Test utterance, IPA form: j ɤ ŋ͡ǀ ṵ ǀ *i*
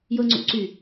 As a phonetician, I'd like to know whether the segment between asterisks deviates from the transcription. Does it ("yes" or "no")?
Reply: yes